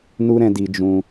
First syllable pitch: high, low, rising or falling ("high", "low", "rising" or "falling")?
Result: high